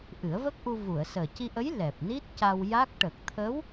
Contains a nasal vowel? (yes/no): no